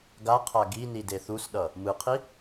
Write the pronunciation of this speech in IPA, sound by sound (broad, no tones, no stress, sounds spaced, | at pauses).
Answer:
ɡ a qʰ a ɡ i n i d e θ u s ɗ ʌ | m ɯ qʰ i